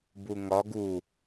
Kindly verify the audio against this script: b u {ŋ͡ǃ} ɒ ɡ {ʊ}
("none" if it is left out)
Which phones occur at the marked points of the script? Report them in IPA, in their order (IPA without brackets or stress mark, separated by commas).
ŋ, u